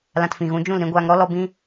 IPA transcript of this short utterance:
l ã˧ t f ĩ˨ ɣ ũ˨˦ d͡ʒ ũ˦˨ l ɾ ĩ˧ ɡʷ aː˧ ŋ ɾ ɔ˦ l ɔ˦ b ĩ˦

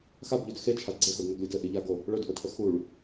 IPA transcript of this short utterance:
x a b ʎ ɵ d x e t͡ʃʰ a d ɡ͡ǀ e x o d n ə ɡ lʲ o d ɘ ʔ i ʎ a ɡ o | ɭ ɵ d ʔ ʊ tʰ ə x u ɭ

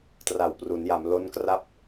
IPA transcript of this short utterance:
t r a˨˩ w p r u˩˦ n j a˩˦ m l o˦˥ n k r a˥˩ p̚

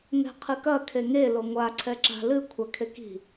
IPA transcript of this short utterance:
ŋ ɛ̤ qʰ ɨ k ɐ kʰ e ŋ e l o ŋʷ a ǀʰ ɛ ǁ a̤ l ɨ kʷʰ a kʰ e k i̤

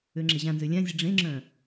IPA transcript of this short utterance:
ø ŋ͡ǁ e ʑ ã n z ø lʲ ã zʲ ə ɖ͡ʐ ẽ ŋ͡ǁ œ̃

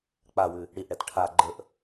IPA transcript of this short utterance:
k͡p a w ʉ | ɽ i ʔ ɽ ɛ t ʈʰ a ɡ͡ǃ ə ʔ

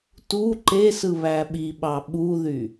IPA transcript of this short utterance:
t u ǃ e s ɯ β æ ɓ i ɓ ɑ ɓ u ð y

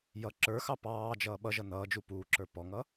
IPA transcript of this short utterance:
j ʌ ǁ ə˞ x ɑ p ɑː d͡ʒ ʌː ɓ ʌ ʒ ʌ n ʌː d͡ʒ u p uː ǁ ə˞ p ɔ ŋ ʌ

